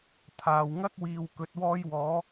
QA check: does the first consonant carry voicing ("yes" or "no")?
no